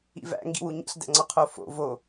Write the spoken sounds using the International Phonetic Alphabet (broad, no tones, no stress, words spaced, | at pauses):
ḭvæ̰ ŋɡḭwuɲḛɬ dæ̰ŋ͡ǀɒqʰo fo̰ vo